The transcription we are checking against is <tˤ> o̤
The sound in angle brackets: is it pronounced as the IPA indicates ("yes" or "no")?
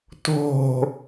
no